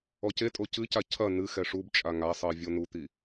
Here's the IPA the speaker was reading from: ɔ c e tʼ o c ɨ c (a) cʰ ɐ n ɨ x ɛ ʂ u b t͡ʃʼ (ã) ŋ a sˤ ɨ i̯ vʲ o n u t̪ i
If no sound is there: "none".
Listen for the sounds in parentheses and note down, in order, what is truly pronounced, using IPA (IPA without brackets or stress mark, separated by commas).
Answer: a, a